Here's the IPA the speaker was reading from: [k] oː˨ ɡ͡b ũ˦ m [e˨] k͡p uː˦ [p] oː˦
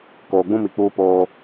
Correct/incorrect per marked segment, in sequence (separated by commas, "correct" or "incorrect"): correct, incorrect, correct